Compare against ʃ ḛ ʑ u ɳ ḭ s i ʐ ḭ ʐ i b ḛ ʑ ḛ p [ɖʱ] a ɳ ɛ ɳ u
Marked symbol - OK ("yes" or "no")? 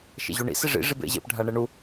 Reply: yes